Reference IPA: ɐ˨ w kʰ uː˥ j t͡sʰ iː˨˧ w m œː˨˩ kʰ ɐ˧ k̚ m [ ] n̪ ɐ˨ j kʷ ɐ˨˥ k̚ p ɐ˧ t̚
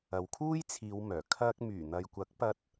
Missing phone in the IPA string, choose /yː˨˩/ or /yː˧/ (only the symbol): yː˨˩